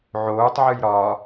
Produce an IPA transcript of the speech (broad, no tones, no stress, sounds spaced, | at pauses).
ʕ oː tˤ ʕ ɨ j ɾ ɒ